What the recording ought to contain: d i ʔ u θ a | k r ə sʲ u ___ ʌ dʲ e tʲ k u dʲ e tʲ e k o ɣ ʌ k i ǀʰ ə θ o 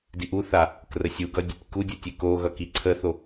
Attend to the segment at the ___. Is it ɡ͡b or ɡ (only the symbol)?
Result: ɡ